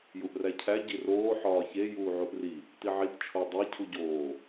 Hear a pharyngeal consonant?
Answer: yes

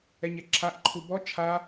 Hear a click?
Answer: yes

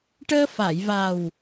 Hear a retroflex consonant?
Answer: yes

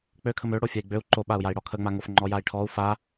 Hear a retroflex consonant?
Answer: yes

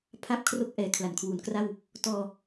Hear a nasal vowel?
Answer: no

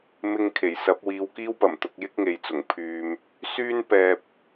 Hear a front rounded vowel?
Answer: yes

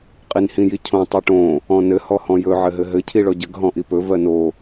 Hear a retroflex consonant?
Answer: yes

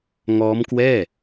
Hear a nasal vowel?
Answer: no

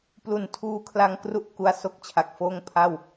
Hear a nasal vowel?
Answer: no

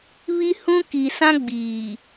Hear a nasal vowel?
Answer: yes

